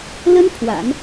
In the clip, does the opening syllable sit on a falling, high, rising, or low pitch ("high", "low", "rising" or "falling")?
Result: high